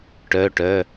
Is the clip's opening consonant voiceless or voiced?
voiceless